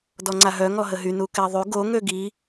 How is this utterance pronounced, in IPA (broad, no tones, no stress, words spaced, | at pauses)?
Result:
dɔŋ͡ǀaɦœ ŋɔɦəɦy nukɛðˤy ɡo ŋøɡi